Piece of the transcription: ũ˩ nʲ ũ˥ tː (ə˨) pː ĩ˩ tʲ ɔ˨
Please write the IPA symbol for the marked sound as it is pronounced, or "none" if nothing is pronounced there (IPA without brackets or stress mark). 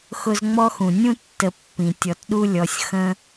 ə˨